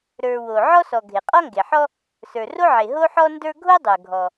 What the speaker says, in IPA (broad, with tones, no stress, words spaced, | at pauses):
ɾə˞˩ wo˩ ʕɔ˥sɔ˩ ɡʱe˩qʼɔ˥ŋɡe˩ħɔ˥ | sə˞˩ro˥ʕe˩ ɦo˥ħɔ˥ndə˞˥ ɡʱo˥dˤə˞˩ɡʱɔ˩